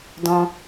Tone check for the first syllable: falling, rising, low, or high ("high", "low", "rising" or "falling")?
high